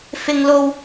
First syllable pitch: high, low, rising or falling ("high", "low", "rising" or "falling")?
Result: high